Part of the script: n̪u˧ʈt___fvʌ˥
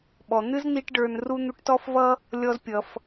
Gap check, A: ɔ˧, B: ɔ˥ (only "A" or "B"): B